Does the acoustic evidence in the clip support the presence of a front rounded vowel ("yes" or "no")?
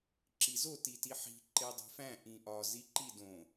no